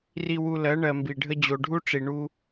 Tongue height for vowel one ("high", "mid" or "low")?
high